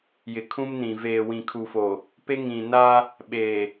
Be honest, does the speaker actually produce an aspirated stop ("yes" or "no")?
yes